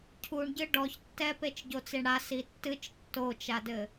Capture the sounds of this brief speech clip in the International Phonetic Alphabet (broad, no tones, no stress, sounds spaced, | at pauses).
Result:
cʰ u ɳ ɟ ɨ ɖ ɔ ç tː ɛ p e t͡ʃ ɟ o t͡s i ɳ ɽ a s i tː ɨ t͡ʃ tː o t͡ʃ a d ɘ